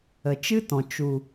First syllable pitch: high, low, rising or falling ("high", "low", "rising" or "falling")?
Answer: low